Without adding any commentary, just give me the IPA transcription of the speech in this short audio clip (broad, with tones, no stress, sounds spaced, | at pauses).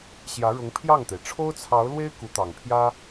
ɕ j ä˧˥ ɻ ʊ˧˥ ŋ pʰ j ɑ˥˩ ŋ t̪ e˩ ɪ̯ ʈ͡ʂʰ o˥ ʊ̯ t͡sʰ ɑ˧˥ ʊ̯ l w e˥ ɪ̯ k u˧˥ t̪ ɑ˨˩ ŋ pʰ j ä˥